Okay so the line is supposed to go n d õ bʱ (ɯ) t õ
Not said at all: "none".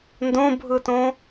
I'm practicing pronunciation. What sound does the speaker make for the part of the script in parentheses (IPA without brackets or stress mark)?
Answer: ɯ